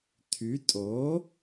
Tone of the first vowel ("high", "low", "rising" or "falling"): rising